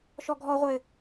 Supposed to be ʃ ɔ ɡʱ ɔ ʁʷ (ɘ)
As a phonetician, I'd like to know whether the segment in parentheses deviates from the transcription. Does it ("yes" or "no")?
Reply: no